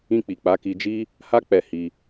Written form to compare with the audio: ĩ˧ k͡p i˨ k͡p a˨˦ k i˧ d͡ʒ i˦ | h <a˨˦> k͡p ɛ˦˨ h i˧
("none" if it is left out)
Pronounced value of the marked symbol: a˦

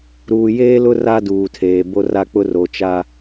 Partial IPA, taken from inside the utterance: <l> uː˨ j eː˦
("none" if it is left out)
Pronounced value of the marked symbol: ɾ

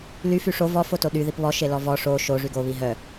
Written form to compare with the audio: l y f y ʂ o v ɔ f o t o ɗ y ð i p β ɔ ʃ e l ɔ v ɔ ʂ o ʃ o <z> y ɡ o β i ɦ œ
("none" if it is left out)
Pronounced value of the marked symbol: ʐ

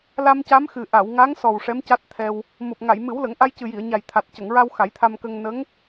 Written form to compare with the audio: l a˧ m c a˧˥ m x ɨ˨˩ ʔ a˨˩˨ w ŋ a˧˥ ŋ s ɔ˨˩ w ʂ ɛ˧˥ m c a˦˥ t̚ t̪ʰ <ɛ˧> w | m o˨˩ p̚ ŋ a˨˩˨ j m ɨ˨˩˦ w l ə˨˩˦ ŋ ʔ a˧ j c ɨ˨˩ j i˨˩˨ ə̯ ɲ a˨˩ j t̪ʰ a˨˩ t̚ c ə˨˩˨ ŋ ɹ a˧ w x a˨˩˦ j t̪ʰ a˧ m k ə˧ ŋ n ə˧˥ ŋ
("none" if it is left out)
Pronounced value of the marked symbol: ɛ˧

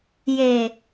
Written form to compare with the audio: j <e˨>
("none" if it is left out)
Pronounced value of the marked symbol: e˨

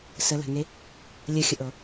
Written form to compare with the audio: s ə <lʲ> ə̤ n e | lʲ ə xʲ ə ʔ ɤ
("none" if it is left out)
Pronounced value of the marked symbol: l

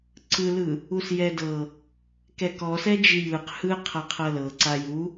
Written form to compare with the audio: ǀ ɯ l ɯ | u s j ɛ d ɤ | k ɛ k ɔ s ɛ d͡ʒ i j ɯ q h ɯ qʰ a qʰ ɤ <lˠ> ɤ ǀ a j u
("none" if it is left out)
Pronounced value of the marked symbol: l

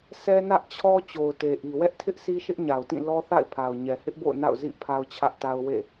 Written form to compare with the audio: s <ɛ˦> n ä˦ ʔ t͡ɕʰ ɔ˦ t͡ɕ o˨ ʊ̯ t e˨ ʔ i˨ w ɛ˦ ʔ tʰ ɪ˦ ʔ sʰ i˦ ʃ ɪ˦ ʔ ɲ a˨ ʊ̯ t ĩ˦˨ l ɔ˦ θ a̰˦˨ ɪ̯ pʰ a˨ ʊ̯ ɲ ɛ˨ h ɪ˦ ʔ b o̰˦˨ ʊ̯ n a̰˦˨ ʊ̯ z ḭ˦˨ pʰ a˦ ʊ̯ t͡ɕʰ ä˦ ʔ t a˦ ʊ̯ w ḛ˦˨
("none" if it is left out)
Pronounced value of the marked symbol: ɛ˦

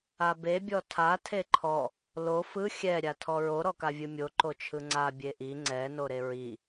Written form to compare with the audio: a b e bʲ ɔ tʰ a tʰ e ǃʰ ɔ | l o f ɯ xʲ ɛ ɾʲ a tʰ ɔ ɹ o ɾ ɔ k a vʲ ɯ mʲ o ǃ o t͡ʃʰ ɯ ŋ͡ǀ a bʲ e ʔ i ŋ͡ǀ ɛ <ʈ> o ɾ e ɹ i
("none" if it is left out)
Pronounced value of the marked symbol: n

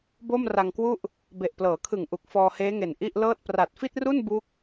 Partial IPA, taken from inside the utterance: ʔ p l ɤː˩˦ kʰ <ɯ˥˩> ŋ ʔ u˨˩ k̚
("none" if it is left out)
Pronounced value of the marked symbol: ɯ˨˩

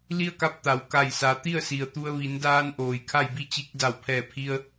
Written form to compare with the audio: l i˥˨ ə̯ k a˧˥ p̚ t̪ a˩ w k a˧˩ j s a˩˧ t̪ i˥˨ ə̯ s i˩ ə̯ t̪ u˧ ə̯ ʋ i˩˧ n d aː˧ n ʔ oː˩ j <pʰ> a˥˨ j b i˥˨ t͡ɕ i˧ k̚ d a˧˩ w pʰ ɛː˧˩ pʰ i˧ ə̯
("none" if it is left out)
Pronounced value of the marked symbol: kʰ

